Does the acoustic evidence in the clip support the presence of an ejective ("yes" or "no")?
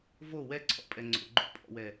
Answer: yes